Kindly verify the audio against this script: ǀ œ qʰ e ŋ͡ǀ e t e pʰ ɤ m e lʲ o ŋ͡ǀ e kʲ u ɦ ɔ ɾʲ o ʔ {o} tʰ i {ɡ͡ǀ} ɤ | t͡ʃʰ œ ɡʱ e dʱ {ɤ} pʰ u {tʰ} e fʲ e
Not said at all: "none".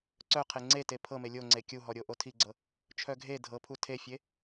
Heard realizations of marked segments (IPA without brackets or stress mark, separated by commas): o, ɡ͡ǀ, ɤ, tʰ